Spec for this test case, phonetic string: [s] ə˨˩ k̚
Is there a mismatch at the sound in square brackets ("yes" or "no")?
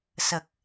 no